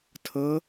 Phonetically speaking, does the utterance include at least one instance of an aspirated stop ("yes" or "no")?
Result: yes